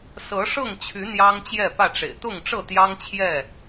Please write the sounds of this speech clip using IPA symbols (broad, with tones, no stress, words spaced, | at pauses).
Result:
sɤ˨˦ʂɤ˥˨ŋt͡ɕʰy˨˦ n̪jɑ˦ŋt͡ɕjɛ˥˨pä˥˨ʈ͡ʂḛ˨˩ɪ̯ t̪ʊ˥˨ŋʈ͡ʂɤ˥˨ t̪jɑ˦ŋt͡ɕʰjɛ˥˨